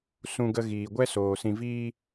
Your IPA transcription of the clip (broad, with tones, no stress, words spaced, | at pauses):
sũ˧ɡə˧ ɣiː˨ɡʷɛ˦soː˨ sĩ˨viː˧